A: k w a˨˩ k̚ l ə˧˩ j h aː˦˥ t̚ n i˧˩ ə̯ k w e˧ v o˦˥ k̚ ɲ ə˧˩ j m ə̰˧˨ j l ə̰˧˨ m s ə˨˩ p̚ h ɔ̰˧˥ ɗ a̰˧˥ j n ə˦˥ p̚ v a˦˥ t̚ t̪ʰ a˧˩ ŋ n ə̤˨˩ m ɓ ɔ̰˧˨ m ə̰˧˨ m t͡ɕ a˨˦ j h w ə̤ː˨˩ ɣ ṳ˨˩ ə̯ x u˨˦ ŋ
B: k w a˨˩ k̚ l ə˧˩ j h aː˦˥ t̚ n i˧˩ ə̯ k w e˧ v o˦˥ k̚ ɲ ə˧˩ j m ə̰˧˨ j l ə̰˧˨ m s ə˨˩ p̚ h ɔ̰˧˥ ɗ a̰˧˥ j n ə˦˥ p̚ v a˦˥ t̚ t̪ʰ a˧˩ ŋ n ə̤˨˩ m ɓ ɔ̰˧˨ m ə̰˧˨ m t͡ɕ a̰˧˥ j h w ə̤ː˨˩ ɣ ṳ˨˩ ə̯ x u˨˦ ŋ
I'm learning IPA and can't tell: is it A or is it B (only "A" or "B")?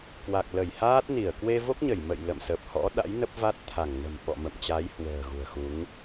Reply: A